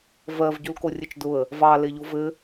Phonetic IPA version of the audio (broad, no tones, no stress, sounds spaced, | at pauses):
v ɜ v ɟ u l k o rʲ ɘ t͡ʃ d ʊ ə̯ | v ɑ l e ʎ o v ɘ